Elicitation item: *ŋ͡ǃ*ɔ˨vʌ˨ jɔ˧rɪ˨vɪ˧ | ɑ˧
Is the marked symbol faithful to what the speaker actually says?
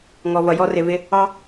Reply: no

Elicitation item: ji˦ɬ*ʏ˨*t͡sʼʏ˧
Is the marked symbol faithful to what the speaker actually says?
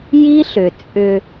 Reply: yes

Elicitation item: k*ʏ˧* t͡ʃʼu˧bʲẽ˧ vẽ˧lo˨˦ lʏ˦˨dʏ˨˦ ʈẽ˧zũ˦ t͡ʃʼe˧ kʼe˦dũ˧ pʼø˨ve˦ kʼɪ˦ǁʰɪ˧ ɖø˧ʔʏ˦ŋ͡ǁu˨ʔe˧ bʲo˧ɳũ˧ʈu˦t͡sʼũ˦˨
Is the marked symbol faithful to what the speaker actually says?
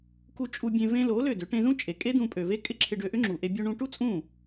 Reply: no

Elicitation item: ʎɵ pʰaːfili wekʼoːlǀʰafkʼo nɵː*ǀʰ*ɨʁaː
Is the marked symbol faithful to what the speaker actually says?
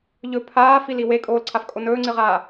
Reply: no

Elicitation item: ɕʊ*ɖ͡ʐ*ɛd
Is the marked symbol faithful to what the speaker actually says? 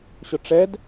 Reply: no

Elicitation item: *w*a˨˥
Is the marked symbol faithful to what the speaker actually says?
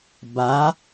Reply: no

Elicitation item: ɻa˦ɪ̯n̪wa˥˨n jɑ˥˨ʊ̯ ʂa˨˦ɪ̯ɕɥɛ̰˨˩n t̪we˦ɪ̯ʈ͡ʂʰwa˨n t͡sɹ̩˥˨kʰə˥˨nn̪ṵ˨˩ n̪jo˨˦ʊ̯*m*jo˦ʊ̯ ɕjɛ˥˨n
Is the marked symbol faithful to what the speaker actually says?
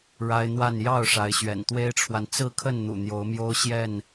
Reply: yes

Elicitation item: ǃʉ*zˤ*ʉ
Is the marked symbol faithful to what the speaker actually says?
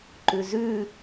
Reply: no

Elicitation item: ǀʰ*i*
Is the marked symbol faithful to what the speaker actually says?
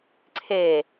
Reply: no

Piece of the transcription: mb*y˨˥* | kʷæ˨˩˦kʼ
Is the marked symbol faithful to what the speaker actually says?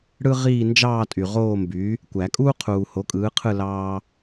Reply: yes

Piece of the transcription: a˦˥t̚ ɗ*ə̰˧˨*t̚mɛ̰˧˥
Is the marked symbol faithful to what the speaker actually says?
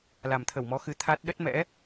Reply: no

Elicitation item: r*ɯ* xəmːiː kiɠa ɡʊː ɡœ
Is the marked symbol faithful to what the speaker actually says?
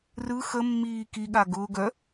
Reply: yes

